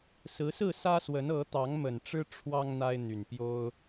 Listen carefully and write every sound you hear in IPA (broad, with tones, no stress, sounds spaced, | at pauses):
s ɹ̩˨˦ s ɹ̩˥˨ s ä˦ s w ə˨˦ n ɤ˨˦ t̪ ɑ˨˦ ŋ m ə˨˩ n ʈ͡ʂ ɻ̩˦ ʈ͡ʂʰ w ɑ˦ ŋ n̪ a˦ ɪ̯ n̪ y˨˩ n p j o˦ ʊ̯